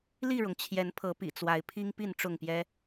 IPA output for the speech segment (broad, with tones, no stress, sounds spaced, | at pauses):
l i˥˨ ɻ ʊ˩ ŋ t͡ɕʰ j ɛ˨˦ n pʰ ɤ˨˦ p ḭ˨˩ t͡s w a˨˦ ɪ̯ pʰ i˦ ŋ p i˥˨ n ʈ͡ʂ ʊ˥˨ ŋ p j ɛ˦